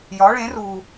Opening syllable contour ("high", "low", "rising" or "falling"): rising